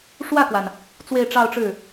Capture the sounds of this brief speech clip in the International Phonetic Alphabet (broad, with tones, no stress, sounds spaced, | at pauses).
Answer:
ʂ w ä˥˩ k w a˩ n | t͡s w e˥˧ ɪ̯ ʈ͡ʂ ɑ˥˧ ʊ̯ ʈ͡ʂ ɻ̩˥˩